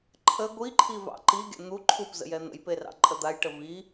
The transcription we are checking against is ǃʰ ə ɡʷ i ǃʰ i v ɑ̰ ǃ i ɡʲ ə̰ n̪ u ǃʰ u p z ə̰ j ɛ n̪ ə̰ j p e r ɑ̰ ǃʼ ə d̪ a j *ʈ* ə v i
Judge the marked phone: correct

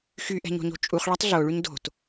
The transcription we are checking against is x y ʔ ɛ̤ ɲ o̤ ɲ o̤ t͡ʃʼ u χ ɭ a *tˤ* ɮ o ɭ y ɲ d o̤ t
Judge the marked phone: correct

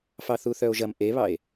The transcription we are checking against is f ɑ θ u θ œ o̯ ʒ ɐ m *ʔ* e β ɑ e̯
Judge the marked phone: correct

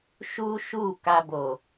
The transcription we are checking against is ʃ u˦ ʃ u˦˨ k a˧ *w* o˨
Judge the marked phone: incorrect: b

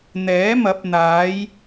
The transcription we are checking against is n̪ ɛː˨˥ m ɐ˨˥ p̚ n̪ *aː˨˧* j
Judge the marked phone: correct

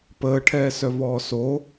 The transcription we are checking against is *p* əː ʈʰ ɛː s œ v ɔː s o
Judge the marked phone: correct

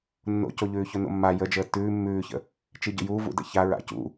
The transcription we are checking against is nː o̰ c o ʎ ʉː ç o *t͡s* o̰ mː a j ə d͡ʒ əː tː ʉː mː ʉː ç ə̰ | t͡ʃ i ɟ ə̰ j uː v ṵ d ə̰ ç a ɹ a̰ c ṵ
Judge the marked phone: incorrect: n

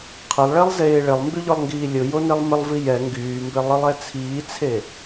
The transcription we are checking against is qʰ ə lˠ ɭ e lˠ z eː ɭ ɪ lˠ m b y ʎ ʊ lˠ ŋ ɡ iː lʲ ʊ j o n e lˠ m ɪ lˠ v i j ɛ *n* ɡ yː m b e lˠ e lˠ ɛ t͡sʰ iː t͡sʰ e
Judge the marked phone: incorrect: ŋ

